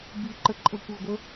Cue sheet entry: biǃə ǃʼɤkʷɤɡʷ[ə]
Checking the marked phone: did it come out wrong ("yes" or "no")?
no